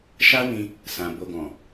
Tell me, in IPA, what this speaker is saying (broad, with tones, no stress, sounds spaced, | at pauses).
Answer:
ʃ a˦ w ĩ˧ | s ã˨ b o˨ ɡ ɔ̃˨